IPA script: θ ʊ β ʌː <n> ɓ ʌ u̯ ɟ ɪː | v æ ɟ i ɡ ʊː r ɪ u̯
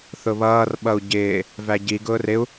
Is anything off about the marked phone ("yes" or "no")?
yes